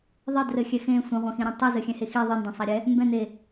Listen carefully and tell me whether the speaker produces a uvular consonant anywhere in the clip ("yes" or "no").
yes